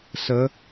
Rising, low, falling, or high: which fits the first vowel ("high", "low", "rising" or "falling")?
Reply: rising